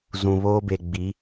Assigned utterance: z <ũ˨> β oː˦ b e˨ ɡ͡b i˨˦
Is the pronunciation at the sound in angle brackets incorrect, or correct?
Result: correct